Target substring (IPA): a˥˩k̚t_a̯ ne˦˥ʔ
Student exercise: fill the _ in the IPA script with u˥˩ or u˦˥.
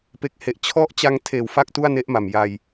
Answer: u˥˩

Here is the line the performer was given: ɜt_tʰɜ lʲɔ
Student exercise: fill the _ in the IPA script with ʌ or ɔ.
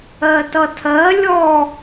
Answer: ʌ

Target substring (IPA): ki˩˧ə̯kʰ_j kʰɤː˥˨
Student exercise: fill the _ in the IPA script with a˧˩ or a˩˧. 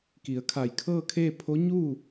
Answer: a˧˩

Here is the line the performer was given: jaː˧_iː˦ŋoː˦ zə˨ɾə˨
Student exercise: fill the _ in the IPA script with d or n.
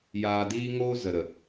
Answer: d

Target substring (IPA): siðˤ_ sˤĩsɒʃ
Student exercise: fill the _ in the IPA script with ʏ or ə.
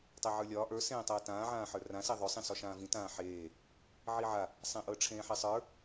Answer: ʏ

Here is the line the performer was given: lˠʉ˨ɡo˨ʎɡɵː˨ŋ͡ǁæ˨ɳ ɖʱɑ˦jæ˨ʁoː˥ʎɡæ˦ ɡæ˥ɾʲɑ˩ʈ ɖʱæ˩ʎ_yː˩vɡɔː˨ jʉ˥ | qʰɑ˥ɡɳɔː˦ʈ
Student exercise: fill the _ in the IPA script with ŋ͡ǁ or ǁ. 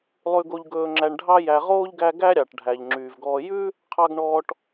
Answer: ŋ͡ǁ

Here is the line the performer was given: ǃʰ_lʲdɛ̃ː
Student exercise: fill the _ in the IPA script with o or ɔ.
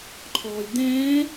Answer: ɔ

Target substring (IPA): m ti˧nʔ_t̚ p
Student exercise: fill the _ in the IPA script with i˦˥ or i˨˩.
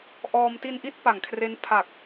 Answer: i˦˥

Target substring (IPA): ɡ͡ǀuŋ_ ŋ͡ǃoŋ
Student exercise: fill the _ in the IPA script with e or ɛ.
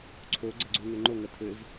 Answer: e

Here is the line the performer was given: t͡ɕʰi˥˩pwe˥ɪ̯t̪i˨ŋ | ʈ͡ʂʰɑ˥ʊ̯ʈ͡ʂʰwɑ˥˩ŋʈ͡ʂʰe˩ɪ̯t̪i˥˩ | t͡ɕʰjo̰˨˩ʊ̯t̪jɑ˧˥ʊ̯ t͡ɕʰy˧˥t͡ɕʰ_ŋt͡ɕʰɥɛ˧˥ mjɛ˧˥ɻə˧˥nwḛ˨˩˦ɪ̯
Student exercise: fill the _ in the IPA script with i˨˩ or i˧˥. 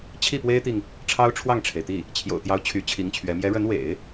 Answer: i˧˥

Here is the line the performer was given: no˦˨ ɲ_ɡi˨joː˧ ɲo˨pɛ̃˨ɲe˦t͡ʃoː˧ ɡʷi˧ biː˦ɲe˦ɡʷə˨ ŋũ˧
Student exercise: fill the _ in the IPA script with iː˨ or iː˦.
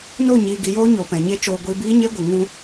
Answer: iː˨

